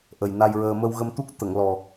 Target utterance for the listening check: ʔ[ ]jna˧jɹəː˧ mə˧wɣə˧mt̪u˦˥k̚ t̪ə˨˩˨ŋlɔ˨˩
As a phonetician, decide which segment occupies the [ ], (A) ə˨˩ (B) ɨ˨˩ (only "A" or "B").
A